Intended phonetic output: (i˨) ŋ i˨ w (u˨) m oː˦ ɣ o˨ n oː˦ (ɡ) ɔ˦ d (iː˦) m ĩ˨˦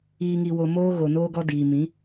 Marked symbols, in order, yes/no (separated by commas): no, no, yes, no